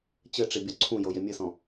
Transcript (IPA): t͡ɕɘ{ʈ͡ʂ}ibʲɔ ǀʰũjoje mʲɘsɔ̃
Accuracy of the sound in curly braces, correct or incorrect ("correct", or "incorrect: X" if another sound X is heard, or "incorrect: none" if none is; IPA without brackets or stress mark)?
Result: correct